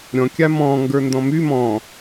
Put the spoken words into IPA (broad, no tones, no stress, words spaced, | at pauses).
ɾʲɔ̃kʲa mɔ̃ŋɡə˞ ndɔ̃my mɔ̃